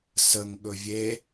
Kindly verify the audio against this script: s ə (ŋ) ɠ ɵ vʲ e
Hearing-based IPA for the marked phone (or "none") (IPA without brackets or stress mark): ŋ